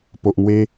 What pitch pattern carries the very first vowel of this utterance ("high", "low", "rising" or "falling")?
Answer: low